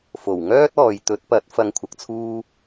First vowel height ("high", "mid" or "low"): mid